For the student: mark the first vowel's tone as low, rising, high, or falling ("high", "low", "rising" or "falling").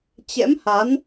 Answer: rising